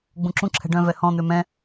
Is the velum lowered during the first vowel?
yes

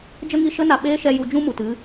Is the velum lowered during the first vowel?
no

